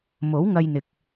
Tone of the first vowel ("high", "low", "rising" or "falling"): rising